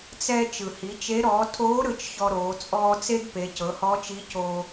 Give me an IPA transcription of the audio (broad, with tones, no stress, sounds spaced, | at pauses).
t͡s ɛ˧ t͡ʃ ɯ˩ h i˩˧ t͡ʃ e˧˥ ɾ ɔː˩˧ tʰ oː˧˥ ɾ ɯ˩˧ t͡ʃ ç ɔ˧ ɾ oː˩˧ t͡sʼ ɔː˧ t͡s e˥ ɡ p e˩˧ c ɤ˩˧ h ɔ˧˥ t͡ʃ i˧˥ c o˧